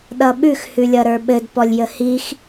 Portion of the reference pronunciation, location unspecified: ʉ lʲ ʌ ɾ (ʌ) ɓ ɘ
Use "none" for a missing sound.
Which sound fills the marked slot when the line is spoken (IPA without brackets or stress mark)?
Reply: ə˞